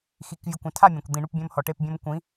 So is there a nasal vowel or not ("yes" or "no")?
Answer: yes